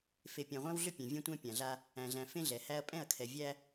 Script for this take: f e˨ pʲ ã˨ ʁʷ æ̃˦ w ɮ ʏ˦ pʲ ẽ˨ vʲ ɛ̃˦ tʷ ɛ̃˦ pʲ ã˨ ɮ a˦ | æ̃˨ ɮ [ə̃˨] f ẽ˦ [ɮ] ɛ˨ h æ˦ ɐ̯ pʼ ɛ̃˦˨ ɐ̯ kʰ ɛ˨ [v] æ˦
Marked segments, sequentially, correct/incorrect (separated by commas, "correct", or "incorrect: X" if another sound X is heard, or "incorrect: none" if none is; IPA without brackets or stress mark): incorrect: æ̃˨, correct, incorrect: vʲ